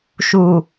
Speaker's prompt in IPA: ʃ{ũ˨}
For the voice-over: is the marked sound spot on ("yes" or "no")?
no